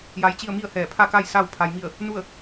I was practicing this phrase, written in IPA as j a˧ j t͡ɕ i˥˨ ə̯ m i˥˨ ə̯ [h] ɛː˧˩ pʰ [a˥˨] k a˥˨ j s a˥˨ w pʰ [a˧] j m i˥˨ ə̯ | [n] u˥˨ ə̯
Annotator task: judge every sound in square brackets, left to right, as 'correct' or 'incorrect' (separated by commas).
correct, correct, correct, correct